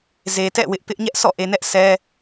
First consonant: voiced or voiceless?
voiced